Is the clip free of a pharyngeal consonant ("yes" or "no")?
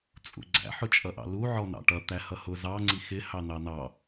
no